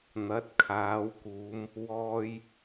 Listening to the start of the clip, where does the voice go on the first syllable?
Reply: rising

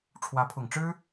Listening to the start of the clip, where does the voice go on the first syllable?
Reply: rising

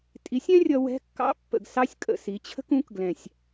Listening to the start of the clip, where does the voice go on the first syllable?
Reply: rising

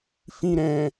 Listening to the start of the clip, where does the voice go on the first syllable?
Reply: low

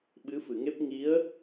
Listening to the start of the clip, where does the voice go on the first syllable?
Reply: rising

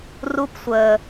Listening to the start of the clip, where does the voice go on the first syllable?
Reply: high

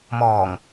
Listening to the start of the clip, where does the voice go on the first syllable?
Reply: low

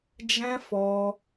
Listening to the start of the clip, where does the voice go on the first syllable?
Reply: high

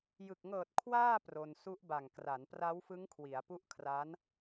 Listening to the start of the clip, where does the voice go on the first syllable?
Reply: low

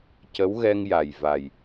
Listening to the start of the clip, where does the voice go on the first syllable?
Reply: rising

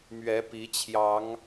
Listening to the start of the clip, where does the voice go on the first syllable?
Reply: rising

